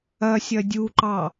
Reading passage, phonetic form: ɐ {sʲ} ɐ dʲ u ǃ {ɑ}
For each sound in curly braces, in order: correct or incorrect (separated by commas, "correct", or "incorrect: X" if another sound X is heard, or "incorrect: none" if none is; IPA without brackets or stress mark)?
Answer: correct, correct